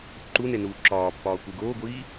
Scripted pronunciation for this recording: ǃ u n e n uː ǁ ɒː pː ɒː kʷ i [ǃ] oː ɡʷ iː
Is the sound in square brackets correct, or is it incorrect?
incorrect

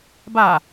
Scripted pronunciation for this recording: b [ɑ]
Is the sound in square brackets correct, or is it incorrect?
incorrect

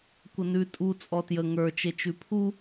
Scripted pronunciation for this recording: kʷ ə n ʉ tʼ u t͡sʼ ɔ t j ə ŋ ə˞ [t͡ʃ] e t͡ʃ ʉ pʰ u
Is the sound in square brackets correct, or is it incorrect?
correct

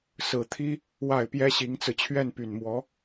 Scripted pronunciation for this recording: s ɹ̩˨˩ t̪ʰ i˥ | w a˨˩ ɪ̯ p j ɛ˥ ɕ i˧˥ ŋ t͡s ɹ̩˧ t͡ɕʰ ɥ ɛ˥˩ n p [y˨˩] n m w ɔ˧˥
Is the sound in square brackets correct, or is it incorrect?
correct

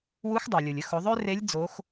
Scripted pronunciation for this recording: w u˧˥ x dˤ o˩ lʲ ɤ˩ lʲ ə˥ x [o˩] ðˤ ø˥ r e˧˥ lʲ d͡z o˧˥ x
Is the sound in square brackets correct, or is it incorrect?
incorrect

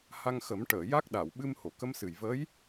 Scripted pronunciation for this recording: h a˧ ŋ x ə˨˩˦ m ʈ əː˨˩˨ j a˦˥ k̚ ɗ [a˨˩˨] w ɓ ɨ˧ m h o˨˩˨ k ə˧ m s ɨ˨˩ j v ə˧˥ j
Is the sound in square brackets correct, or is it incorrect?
correct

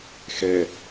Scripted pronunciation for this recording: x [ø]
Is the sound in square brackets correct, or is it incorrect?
incorrect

